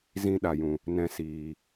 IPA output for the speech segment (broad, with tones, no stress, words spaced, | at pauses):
zĩ˦ɗa˨ jũ˨ | nɛ̃˧siː˨